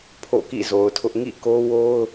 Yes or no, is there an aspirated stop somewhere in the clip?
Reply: yes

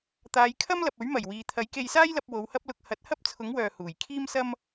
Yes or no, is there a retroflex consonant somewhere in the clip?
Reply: no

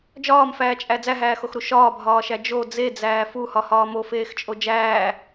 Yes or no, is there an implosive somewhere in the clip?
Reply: no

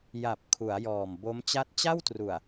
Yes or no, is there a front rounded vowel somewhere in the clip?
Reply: no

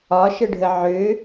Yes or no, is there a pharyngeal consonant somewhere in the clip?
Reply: yes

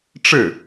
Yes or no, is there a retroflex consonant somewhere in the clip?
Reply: yes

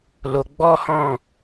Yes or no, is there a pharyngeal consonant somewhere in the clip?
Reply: no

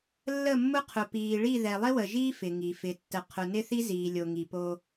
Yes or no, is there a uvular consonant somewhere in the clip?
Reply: yes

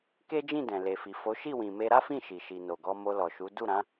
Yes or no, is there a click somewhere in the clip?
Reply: no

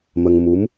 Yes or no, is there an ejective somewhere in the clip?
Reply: no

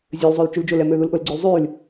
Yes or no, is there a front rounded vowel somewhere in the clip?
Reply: yes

